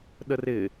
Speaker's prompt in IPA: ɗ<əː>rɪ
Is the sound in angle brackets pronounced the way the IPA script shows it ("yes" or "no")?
no